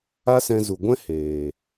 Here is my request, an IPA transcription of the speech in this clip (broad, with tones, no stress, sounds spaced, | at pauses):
a˦ s ɛ̃˧ z u˨ ɡʷ ɛ̃˦ h eː˨